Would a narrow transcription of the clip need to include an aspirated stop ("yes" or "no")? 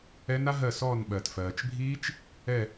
no